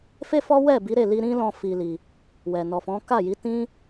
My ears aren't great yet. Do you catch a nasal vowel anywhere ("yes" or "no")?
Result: yes